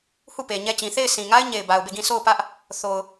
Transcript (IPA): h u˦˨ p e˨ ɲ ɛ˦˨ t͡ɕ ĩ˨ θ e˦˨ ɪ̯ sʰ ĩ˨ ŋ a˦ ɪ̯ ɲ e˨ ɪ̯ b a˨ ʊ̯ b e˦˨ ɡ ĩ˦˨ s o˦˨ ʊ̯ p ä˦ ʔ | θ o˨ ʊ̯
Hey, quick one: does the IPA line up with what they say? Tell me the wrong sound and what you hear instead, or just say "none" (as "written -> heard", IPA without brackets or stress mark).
none